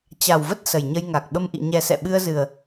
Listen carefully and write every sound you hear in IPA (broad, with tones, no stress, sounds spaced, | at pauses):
t͡ɕ a˨˩ w v ə˦˥ t̚ s ə˨˩ j ɲ ə˧ j ŋ a˨˩ k̚ ɓ ə˧ m ʔ ḭ˧˨ ɲ ɛ˨˩ s ɛ̰˧˨ ɓ ɨ˧ ə̯ z ɨ˨˩ ə̯